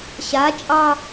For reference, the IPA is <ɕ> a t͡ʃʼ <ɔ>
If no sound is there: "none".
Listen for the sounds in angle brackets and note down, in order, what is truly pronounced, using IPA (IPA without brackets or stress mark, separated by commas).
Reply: ɕ, ɑ